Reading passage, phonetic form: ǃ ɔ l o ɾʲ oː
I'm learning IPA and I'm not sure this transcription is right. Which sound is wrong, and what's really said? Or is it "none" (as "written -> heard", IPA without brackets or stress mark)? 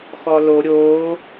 ǃ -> x